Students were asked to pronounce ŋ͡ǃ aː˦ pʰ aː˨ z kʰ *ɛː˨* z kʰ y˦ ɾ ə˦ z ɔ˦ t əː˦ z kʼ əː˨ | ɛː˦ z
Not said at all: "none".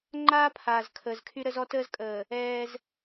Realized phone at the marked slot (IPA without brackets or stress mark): əː˨